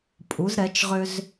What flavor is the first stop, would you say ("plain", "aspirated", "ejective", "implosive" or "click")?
ejective